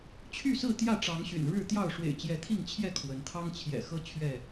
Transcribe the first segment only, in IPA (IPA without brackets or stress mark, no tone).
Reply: t͡ɕʰ